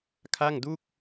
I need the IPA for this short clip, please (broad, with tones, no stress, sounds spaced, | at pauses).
kʰ a˥˩ ŋ d u˥˩ k̚